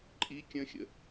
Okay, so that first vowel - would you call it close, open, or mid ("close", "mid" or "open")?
close